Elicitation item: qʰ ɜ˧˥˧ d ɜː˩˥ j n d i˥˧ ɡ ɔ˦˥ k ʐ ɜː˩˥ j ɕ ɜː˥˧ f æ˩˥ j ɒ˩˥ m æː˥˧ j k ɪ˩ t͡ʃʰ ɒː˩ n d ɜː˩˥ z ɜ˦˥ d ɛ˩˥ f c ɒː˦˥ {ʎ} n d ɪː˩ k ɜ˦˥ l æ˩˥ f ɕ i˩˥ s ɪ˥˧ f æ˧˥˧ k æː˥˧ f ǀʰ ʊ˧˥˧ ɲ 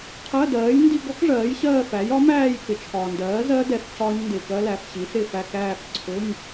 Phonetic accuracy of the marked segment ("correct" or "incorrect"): incorrect